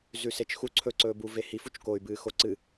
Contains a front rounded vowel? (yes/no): yes